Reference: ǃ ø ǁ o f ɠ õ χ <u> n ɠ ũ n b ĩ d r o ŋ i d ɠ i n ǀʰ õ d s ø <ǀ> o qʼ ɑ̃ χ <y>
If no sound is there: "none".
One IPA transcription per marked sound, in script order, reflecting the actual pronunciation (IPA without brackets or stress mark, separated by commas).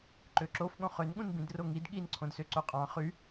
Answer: ø, ǀ, y